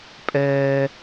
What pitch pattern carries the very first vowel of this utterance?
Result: high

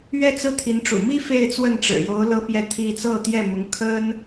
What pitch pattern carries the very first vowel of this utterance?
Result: falling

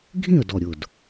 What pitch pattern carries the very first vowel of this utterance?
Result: falling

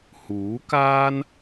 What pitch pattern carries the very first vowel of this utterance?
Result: rising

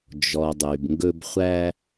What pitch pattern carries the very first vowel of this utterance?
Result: low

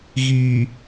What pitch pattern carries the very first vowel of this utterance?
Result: low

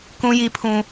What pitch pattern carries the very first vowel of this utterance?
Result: high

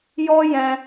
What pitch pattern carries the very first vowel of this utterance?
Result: high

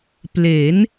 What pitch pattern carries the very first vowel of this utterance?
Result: rising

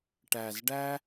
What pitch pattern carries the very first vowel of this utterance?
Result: low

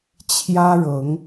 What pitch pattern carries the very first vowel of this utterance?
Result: high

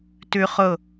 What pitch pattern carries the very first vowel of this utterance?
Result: high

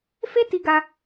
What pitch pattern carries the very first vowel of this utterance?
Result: high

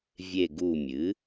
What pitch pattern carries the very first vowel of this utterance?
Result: low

